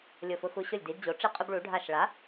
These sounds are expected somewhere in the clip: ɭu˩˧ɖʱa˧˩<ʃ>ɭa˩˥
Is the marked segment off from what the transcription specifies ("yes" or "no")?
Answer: no